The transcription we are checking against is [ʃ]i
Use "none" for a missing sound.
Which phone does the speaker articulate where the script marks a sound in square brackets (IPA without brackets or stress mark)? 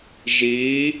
ʒ